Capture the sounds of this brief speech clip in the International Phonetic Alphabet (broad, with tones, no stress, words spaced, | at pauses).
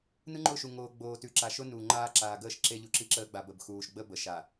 nɯ˦ŋ͡ǃʊ˦˨ʃu˨ ŋoː˨ ɡ͡boː˨tʉ˨ ǁa˨ʃʊ˦nuː˨ ŋ͡ǃaː˦ ǁaː˨ɡəː˦˨ʃ ǁe˦ ʎu˨ ǁi˦ǁəː˦ ɡ͡ba˨bə˨b xuː˨ʃ ɡ͡bə˦ bə˨ʃa˨